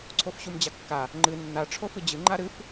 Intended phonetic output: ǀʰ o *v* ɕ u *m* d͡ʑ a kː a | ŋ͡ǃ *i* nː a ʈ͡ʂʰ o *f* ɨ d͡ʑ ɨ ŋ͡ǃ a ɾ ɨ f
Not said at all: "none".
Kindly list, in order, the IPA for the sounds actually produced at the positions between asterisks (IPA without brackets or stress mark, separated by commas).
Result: f, m, ɨ, f